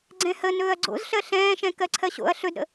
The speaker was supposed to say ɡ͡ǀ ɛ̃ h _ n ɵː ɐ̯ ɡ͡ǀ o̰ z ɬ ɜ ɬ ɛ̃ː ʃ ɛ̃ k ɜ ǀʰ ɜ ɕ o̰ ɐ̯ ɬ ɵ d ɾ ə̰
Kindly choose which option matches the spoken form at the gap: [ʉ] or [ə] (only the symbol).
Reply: ə